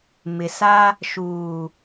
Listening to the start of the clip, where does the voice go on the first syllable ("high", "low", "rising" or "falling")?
low